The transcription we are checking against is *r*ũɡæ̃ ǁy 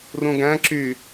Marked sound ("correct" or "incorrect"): correct